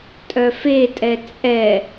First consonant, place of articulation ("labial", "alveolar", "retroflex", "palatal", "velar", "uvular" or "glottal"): alveolar